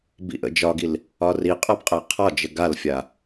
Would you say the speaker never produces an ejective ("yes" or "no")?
no